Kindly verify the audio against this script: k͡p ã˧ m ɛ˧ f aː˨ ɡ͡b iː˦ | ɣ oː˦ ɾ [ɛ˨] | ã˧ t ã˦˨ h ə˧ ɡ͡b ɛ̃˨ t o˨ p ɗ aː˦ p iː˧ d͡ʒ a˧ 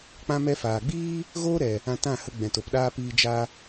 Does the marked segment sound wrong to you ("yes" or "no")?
no